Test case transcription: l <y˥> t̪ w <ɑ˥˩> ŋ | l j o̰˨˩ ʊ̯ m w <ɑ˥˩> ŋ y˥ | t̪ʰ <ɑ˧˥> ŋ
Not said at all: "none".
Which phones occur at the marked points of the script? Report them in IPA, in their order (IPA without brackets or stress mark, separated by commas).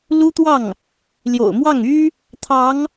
u˥, ɑ˥˩, ɑ˥˩, ɑ˧˥